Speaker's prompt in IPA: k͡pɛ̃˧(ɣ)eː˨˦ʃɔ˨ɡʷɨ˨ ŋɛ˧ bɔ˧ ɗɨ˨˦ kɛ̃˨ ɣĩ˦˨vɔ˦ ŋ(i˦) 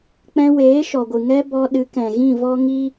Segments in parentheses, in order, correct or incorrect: incorrect: w, correct

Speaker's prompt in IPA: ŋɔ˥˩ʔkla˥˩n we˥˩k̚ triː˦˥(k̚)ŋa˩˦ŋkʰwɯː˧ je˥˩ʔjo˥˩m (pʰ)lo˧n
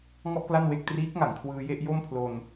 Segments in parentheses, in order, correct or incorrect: correct, correct

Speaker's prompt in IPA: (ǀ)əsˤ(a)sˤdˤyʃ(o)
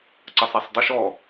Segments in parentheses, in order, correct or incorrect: correct, correct, incorrect: ɔ

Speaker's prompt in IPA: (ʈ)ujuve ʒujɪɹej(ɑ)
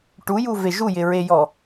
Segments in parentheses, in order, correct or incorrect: correct, incorrect: ɔ

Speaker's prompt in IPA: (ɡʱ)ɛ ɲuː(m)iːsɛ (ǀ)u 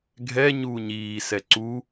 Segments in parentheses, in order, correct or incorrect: correct, incorrect: ɲ, correct

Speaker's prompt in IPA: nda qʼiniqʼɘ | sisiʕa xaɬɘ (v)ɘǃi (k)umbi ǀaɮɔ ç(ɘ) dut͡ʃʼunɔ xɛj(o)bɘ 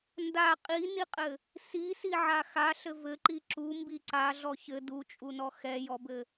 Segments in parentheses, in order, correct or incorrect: correct, incorrect: ǁ, correct, incorrect: ɔ

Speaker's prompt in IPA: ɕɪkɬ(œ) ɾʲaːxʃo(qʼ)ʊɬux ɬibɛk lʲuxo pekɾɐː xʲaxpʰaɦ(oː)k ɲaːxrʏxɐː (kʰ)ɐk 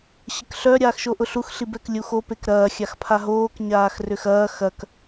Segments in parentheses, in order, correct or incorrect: correct, incorrect: ʔ, correct, incorrect: x

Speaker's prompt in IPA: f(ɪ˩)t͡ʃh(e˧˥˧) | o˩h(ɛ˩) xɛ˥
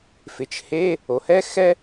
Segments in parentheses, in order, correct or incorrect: correct, correct, incorrect: ɛ˥

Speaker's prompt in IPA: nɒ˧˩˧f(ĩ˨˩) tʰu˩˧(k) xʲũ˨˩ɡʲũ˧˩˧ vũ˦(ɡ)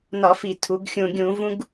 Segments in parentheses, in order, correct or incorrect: incorrect: i˨˩, incorrect: ɡ, correct

